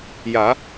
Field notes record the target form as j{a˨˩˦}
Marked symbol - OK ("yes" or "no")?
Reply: yes